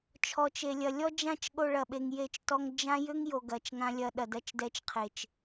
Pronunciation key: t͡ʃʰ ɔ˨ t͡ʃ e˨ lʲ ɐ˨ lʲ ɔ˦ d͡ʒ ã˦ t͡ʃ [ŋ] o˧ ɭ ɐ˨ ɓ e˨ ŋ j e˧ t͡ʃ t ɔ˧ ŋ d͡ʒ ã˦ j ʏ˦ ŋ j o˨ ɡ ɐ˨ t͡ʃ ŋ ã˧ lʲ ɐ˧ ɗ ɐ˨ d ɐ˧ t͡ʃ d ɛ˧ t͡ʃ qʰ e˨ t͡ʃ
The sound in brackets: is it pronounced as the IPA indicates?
no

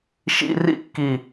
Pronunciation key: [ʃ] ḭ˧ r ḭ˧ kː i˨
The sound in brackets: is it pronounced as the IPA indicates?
yes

